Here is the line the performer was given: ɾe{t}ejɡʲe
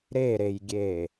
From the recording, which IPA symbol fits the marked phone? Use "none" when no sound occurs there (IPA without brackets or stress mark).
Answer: ɾ